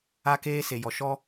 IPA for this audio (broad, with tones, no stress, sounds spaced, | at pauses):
a˦ k eː˦ s e˨ j ɔ˨ ʃ ɔ˦